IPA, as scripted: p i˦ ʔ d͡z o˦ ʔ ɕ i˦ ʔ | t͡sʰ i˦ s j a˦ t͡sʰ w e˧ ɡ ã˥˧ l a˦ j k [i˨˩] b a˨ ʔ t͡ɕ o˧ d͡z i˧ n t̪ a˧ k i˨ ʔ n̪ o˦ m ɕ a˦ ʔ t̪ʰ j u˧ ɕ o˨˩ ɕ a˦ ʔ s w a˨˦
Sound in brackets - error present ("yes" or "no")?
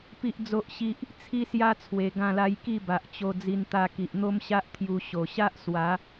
yes